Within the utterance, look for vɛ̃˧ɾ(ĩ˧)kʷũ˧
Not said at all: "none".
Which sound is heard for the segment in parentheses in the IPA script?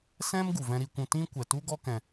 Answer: i˧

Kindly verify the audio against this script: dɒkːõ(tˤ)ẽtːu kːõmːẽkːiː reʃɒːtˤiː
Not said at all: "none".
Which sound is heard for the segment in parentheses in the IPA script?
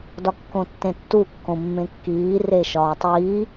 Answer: tː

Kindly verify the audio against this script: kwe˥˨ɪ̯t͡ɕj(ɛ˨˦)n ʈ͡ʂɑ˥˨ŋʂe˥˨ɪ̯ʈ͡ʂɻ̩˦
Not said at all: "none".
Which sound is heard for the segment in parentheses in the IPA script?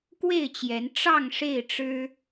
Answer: ɛ˨˦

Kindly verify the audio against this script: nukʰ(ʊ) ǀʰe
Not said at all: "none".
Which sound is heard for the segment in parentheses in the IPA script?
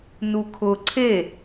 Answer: ʊ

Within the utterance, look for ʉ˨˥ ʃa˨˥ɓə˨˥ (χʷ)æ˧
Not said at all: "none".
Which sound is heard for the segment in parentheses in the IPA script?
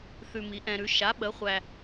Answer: χʷ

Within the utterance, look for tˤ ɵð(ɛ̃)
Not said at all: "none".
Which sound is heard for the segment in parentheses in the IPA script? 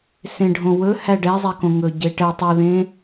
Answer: ẽ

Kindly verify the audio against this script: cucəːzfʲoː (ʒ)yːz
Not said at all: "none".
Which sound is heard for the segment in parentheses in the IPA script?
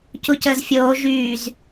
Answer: ʒ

